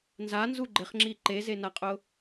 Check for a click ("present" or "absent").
present